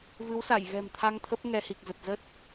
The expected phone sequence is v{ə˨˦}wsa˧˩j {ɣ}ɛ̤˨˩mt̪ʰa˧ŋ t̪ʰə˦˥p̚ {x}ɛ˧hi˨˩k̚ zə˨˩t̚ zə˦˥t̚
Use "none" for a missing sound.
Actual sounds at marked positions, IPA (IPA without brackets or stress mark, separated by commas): ɨ˨˦, ɣ, ŋ